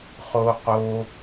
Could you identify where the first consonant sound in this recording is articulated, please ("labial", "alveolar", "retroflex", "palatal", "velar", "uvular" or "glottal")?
uvular